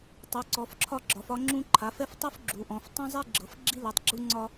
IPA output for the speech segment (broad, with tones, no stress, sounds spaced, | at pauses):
tˤ u˩˥ ǀ ɔ˩˥ f ǁʰ ɒ˥ ɡ͡ǁ ɒ˩˥ f ɒ˥ ŋ͡ǁ ũ˥ ǃʰ a˩˥ f ɛ˥ f tˤ u˥ f ɡ͡ǁ u˩˥ ʔ ɔ̃˩˥ f tˤ ũ˥ zˤ i˥ ɡ͡ǁ ɤ˩˥ f ɡ͡ǁ i˥ l i˩˥ tˤ ɡ͡ǁ u˥ ŋ͡ǀ ɒ˥